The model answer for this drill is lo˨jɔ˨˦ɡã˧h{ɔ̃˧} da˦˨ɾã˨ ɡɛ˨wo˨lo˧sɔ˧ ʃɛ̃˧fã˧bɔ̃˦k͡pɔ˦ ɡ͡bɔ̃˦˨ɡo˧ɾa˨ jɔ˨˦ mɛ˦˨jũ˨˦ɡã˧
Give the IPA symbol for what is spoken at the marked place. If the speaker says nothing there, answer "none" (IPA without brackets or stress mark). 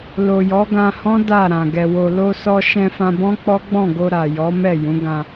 ɔ̃˦